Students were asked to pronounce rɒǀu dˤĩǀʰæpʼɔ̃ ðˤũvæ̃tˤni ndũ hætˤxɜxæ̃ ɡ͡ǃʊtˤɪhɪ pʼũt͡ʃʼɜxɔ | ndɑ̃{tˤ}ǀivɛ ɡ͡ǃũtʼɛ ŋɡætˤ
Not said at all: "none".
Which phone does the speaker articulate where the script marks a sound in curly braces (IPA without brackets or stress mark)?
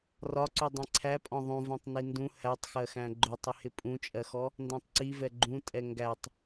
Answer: tˤ